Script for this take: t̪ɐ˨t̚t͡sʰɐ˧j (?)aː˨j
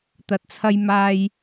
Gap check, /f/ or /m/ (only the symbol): m